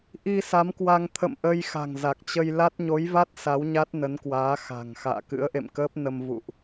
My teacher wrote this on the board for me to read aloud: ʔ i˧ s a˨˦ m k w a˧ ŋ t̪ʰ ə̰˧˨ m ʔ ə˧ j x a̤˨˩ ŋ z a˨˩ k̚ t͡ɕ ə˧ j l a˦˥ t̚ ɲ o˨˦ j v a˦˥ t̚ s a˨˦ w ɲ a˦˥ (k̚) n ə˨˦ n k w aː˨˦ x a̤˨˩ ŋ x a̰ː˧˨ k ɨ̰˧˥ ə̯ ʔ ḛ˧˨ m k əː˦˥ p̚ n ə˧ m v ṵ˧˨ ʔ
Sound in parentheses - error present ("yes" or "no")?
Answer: yes